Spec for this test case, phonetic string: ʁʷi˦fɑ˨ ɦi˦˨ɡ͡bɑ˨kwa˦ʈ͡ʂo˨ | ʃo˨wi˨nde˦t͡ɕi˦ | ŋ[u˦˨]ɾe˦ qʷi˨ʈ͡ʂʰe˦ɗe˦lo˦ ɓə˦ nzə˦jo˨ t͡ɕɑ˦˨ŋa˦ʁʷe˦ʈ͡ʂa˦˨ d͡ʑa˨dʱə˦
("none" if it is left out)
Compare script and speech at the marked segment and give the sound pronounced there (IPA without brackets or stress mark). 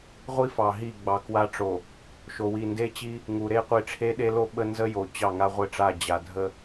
u˨